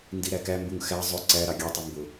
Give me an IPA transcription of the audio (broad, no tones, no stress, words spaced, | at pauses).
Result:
ndiɾækæmbuŋ xæ zˤʊ ǀæ ɾɑɡʲɑtˤu mbʊ